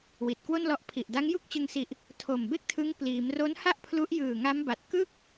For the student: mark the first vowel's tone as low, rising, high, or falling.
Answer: low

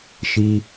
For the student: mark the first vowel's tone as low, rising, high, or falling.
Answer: high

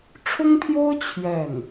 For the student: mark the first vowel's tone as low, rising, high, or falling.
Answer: high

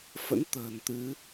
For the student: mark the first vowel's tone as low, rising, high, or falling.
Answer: rising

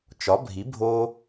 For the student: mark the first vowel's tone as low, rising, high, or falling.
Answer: rising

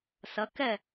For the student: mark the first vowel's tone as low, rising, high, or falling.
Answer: rising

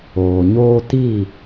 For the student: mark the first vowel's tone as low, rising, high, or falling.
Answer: low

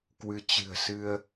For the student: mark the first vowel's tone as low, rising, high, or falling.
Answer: rising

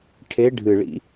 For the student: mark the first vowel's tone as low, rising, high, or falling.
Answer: rising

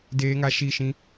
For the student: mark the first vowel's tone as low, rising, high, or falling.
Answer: high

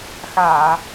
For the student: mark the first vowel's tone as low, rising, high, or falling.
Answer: low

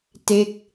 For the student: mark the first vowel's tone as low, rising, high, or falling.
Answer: falling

